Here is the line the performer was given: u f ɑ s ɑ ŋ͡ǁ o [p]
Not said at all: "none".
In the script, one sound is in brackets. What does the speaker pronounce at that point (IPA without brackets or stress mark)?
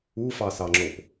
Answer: p